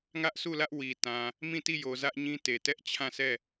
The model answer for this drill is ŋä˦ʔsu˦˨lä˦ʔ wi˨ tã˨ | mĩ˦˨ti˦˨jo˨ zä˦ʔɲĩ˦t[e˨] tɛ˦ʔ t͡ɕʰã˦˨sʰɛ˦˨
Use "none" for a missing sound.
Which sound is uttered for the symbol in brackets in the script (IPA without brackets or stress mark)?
e˨